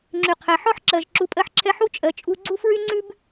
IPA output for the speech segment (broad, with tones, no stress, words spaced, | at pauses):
ŋ͡ǁy˩qʰɛ˩ ħɔ˥ħǁɜ˩ʒ ǁu˩pʼɜ˧ħǁʰɛ˧ ħu˥t͡ʃʼɜ˩t͡ʃʼu˧ ɡ͡ǀu˥fɹy˥ŋ͡ǀʉ˥b